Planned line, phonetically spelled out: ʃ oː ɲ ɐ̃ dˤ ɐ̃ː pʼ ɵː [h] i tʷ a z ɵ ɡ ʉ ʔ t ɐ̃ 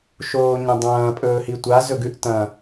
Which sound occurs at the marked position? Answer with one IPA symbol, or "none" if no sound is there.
h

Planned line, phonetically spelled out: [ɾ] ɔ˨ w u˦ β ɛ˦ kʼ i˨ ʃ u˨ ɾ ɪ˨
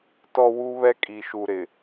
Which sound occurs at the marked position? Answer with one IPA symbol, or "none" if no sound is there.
t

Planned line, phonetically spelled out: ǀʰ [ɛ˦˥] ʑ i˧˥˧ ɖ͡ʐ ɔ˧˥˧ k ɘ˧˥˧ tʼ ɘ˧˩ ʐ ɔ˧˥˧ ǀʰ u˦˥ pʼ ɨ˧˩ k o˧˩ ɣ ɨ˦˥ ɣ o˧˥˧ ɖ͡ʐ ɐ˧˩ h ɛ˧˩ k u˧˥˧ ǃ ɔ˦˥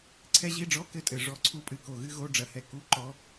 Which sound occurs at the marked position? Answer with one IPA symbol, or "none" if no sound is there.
ɛ˦˥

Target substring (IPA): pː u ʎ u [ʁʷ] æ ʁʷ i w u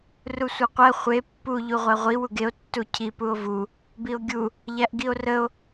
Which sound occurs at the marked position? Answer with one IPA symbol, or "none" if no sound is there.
ʁʷ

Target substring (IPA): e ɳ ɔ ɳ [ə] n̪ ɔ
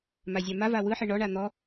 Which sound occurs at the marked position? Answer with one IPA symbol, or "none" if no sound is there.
a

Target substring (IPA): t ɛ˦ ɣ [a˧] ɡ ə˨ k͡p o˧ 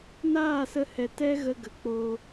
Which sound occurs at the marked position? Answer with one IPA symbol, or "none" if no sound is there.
ə˧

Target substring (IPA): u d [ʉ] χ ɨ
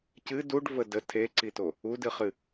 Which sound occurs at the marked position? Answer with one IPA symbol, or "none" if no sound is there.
ɨ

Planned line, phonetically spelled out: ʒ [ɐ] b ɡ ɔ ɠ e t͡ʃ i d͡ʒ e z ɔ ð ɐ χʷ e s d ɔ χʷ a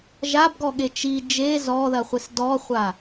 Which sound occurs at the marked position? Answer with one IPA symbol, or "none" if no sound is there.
a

